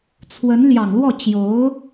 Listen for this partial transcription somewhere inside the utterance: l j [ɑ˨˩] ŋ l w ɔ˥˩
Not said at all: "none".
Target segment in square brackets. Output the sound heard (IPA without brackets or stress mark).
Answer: ɑ˨˩